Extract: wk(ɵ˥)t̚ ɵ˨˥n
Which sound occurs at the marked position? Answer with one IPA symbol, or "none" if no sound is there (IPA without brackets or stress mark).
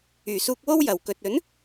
ɵ˨